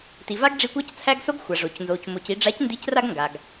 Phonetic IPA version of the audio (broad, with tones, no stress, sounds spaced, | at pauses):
t i˨ v a˦ ɡ ɖ͡ʐ i˧ kʷ a˦ c t͡sʰ æ˦ ɡ s o˦ ɡ xʷ a˨ ʐ o˨ c n z o˨ c m o˨ c i˨ ɖ͡ʐ a˨˦ c n d i˨˦ c r a˧ ɡ ŋ ɡ a˨ ɡ